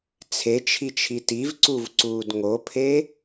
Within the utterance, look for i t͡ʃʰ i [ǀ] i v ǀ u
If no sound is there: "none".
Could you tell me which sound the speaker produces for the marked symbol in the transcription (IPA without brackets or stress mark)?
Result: t